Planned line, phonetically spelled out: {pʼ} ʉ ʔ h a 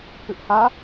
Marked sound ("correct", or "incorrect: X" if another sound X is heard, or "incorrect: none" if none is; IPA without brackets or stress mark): incorrect: p